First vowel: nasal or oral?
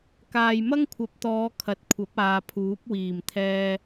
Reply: oral